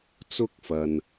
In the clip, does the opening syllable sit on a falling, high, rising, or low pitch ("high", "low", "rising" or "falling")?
high